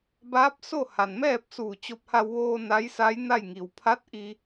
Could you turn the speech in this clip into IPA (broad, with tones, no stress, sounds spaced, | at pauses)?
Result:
b aː˧˥ p̚ s o˥˨ h a˩ n m ɛː˥˨ p̚ s uː˧˩ t͡ɕ o˧ p̚ h a˧ w ʋ oː˧ n a˧˥ j s a˧˥ j n a˥˨ j ŋ i˩ w pʰ a˧˥ t̚ ʔ i˧